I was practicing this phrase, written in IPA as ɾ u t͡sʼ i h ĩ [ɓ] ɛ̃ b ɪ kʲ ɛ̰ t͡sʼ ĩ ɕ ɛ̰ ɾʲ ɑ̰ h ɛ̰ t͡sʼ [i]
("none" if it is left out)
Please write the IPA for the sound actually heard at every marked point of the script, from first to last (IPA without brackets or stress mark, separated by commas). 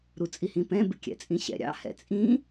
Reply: p, ĩ